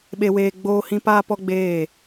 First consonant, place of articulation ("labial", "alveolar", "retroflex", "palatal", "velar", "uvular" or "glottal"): labial